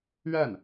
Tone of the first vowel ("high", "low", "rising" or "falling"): falling